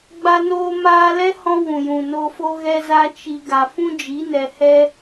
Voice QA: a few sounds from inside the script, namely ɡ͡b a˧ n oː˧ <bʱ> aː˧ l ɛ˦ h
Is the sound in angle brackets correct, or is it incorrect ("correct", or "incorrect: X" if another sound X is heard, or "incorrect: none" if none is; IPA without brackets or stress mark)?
incorrect: m